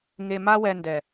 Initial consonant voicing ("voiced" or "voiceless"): voiced